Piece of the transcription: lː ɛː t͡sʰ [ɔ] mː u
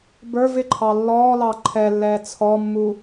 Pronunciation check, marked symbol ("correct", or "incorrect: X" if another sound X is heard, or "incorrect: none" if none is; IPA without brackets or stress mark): correct